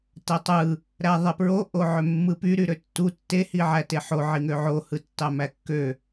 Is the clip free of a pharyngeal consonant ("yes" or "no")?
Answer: no